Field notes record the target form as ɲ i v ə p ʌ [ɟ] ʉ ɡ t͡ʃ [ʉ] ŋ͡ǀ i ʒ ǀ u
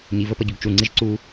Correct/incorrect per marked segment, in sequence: correct, incorrect: u

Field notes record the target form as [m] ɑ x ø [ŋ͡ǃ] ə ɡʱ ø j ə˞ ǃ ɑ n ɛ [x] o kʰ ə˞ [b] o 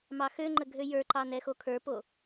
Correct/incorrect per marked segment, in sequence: correct, correct, correct, incorrect: p

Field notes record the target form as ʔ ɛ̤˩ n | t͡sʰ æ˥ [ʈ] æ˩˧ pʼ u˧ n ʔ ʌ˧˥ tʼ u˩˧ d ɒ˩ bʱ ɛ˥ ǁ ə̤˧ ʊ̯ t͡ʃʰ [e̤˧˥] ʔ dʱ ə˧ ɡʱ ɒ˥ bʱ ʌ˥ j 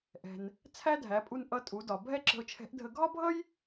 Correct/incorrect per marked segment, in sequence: incorrect: dʱ, incorrect: ɛ̤˧˥

